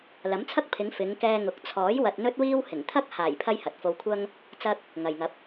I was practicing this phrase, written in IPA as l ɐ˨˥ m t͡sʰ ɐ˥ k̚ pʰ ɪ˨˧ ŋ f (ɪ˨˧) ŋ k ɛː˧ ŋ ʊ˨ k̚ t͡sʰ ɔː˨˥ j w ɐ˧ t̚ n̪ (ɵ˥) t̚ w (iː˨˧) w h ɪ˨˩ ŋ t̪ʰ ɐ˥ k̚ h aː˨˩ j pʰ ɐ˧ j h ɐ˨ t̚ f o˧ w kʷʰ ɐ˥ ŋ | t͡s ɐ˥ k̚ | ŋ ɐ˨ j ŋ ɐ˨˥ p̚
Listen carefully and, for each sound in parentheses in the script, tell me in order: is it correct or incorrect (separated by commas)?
correct, correct, incorrect